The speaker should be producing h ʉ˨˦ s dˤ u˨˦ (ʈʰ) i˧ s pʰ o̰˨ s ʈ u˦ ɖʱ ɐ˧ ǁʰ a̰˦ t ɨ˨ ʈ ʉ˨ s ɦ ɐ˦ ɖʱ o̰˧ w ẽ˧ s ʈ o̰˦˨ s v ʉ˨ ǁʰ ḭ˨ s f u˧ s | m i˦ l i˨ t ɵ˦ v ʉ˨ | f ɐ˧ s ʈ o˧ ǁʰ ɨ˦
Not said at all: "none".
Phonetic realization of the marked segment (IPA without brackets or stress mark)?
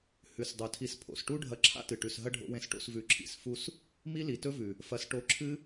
tʰ